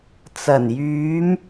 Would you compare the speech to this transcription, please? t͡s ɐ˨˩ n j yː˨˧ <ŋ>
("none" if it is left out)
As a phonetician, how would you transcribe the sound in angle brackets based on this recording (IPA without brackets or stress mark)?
m